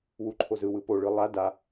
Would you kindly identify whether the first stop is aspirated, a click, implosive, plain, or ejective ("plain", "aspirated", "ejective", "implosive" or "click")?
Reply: click